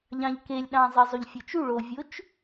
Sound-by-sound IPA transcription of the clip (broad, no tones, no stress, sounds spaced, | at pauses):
ʎ ɑ̃ ʎ k e lʲ ɗ ɑ̃ zˤ i zˤ o ʎ fʲ ɯ t͡ʃ u ɭ o vʲ o t͡ʃ